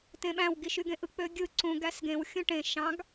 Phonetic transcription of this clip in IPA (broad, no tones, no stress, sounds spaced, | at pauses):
t ẽ ɓ æ̃ w ɡ i ʃ y ɡ ẽ ʔ ɯ k͡p ø ɡʲ ɯ ǀ ũ ɡ æ s ɡ ẽ w xʲ ũ ʈ ẽ ʃ ɑ̃ ɡ